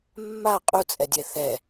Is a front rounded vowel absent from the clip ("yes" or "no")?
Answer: yes